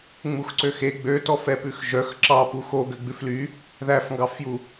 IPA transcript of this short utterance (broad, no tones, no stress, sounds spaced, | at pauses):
ŋ͡m u x ǀ ø x e ɡ͡b ø t ɔ f ɛ p ʉ x ʒ œ x ǁ ɑ p u x o ɡ ø ɡ͡b ʉ f l y | ð æ f ŋ ɡ ɑ f j u